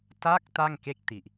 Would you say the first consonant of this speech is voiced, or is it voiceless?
voiceless